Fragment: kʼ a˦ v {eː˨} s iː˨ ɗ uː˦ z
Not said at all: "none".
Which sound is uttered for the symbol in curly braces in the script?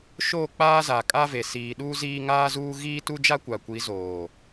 e˨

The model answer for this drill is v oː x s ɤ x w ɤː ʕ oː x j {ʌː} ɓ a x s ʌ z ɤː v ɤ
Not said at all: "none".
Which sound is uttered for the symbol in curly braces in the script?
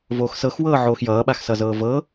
ʌː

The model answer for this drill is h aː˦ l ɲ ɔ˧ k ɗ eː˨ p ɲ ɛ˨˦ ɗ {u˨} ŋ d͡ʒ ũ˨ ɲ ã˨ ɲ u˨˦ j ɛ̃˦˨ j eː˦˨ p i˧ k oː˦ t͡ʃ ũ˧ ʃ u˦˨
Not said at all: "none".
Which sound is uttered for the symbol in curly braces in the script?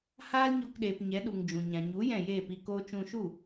u˨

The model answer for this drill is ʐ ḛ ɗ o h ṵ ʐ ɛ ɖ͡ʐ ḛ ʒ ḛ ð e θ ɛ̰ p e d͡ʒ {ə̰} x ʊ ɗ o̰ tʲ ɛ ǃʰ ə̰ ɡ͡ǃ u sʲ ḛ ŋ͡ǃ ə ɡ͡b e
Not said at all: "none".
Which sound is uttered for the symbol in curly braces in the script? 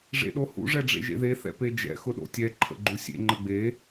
ɛ̰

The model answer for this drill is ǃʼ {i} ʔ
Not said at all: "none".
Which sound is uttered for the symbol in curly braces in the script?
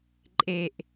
e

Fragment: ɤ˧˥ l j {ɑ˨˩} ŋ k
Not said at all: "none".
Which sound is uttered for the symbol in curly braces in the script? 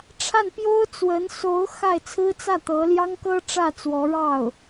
ɑ˥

